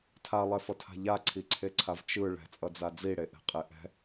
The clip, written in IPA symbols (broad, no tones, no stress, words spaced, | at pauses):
tʰalˠɛfʌtʰa̤ ʎaǀʰiǀʰeǀʰav t͡ʃɯ ɭɛ̤t͡sʼʌd͡za d͡ziɽeʔɛ̤qʼe ʔɛ̤